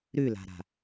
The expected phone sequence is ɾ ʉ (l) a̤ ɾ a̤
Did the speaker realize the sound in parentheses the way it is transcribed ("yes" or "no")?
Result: yes